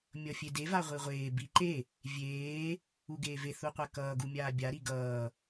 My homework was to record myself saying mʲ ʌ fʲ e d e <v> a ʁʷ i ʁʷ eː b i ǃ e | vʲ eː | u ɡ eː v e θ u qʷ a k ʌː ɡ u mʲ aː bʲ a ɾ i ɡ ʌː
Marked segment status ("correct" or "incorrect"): correct